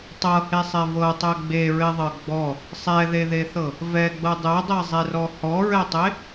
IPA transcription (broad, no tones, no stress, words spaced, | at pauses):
tˤɤhesˤɛ vɤtˤɛ ɡ͡beɹeðˤɤ ɡ͡bɔ | sˤɛðeðeθɤ | vɛɡ͡bɤ dˤɛdˤezˤerɔ hɔɹɛtˤe